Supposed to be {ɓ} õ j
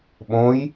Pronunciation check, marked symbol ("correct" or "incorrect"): correct